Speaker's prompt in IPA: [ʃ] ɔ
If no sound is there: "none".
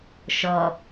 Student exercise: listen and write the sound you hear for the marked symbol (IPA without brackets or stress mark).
ʃ